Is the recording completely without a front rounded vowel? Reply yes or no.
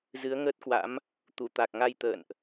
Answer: yes